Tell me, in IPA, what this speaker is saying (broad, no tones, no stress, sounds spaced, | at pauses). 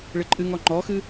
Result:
ɭ ɪ ǃʼ ɨ ŋ ɔ ŋ͡ǃ ɔ x ɨ